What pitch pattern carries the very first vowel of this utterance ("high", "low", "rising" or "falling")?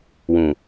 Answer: low